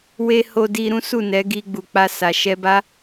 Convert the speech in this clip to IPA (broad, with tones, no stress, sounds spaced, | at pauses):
w e˧ h o˧ d i˧ ɾ ũ˦ s u˦˨ n ɛ˨˦ ɡ i˧ ɡ͡b u˨ k͡p a˧ s a˨ ʃ ɛ˧ b a˦